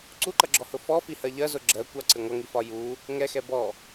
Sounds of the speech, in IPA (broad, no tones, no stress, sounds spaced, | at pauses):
ǀ u ǃ ʌ ɡ͡ǁ ɔ h ʊ f ɔ f i h ɜ ʎ ɜ z ʊ ɡ͡ǁ ɜ kʷ ɑ ǀ ɪ ŋʷ ʌ ŋ i f ɒ j u | ŋ ɛ x ɛ b ɔ